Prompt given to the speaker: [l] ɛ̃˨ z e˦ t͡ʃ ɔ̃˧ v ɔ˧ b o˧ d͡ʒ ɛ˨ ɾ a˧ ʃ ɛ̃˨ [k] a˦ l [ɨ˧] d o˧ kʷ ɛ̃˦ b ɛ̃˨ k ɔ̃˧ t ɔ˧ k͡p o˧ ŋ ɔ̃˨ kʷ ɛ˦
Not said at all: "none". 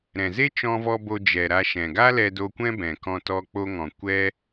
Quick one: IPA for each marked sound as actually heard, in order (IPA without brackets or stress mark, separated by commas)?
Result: ɾ, ɡ, ɛ˧